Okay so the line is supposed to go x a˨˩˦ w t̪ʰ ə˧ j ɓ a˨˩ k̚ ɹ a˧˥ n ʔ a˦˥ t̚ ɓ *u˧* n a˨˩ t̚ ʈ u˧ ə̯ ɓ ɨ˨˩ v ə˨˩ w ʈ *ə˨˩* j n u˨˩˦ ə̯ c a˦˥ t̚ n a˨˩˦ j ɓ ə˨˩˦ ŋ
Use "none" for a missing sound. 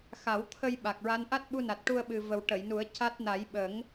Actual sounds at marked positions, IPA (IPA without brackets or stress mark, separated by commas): u˧, ə˨˩˨